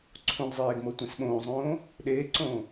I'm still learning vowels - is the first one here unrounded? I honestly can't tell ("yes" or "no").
no